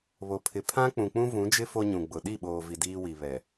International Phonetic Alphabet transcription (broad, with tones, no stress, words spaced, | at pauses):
βo˨pʰɪ˨ pʰã˦ k͡pũ˨k͡pũ˦vũ˨˦d͡ʒɪ˦ fo˦ɲũ˨ ɡ͡bʊ˨ ɗi˦˨ ɓoː˨vi˨ diː˦wi˨ βɛ˨